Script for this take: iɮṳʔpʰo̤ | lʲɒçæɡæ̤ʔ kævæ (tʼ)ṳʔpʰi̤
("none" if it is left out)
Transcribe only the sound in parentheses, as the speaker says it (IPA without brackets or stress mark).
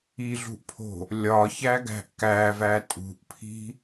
tʼ